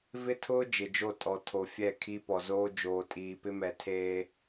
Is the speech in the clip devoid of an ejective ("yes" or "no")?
no